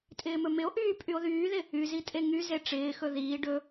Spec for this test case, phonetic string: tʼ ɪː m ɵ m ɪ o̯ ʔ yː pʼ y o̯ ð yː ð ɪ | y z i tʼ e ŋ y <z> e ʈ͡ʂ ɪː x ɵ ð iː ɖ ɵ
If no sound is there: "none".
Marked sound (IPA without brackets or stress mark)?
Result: z